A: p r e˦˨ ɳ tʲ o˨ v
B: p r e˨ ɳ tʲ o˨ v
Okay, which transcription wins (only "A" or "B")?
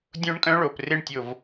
A